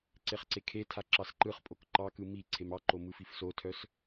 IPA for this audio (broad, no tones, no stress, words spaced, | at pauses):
ǀeχǀekʰetʰa ǁɑsǃɯχpʼok ǃɑkɯ mi ǀʰemɑǃo mɯfifsotʰœs